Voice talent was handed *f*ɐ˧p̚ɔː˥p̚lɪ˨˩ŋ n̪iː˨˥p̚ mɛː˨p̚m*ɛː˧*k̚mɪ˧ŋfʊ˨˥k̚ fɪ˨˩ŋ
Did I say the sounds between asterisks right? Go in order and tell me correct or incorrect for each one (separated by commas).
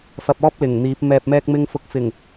correct, correct